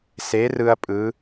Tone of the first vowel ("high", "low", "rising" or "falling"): rising